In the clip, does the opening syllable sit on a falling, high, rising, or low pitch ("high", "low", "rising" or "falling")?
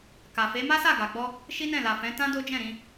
low